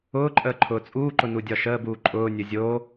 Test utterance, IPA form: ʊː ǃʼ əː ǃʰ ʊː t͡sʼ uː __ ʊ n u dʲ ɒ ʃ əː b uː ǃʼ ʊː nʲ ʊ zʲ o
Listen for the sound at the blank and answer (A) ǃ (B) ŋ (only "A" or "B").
A